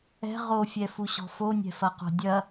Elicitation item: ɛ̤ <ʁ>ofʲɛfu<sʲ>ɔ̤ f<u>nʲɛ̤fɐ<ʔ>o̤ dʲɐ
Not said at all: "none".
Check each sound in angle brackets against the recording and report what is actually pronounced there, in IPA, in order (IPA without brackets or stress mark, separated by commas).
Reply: ʁ, ɕ, o, q